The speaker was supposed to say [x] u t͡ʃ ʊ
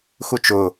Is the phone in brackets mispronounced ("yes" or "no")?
no